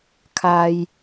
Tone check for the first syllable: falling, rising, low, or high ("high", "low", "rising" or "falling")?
low